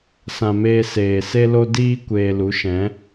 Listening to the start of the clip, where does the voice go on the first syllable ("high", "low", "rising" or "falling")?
low